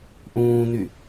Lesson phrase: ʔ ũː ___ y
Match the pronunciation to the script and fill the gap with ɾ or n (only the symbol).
n